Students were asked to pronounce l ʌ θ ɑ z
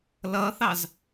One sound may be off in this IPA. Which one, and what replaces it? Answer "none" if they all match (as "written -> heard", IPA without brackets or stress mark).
none